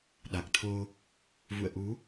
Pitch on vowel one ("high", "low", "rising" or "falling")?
low